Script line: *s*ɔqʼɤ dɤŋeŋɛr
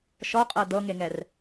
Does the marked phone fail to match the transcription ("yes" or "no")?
yes